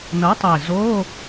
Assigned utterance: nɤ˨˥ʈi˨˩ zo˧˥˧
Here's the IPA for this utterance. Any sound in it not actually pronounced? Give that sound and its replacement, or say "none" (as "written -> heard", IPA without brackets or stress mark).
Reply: ʈ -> tˤ